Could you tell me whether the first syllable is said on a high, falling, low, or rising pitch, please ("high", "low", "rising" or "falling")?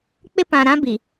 high